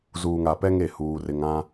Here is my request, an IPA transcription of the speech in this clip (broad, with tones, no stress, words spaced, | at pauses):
zuː˨ŋa˨ pɛ˦ŋe˦˨ huː˦rɪ˦ŋã˦